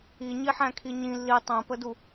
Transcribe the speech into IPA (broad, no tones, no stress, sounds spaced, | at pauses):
i ɲ i ħ æ̃ kʰ i ɲ ĩ lː i tˤ æ̃ p ə d u